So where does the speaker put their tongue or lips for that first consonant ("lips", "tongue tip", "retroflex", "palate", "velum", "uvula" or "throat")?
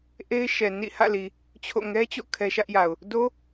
throat